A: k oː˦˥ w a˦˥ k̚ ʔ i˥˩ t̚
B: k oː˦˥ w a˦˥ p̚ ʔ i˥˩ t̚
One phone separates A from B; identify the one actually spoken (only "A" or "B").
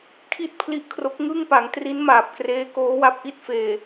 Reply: B